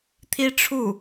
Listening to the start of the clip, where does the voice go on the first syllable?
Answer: high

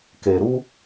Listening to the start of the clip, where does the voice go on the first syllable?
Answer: low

